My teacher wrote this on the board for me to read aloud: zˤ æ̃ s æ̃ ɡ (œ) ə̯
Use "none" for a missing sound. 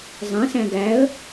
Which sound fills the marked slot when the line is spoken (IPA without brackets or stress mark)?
æ